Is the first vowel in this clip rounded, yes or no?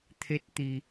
no